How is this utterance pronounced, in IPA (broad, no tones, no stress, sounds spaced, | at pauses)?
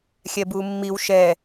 xʲ ɛ b u mː i w ʃ ɛ